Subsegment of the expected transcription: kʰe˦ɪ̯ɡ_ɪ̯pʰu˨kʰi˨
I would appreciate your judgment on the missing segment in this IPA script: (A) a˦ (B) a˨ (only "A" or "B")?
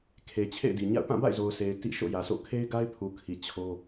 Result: A